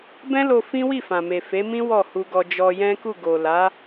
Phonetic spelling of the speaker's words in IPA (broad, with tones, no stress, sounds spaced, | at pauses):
b ɛ̃˦ l o˧ f ĩ˦ w i˦˨ f ã˨ m e˨ f e˨˦ m ĩ˦ w ɔ˦˨ h u˧ ɡ ɔ˧ d͡ʒ ɔ˧ j ɛ̃˦ k u˦˨ ɡ o˨ l a˨˦